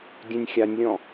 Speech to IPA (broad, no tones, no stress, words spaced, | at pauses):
dʲẽnʲxʲanʲlʲɔ̃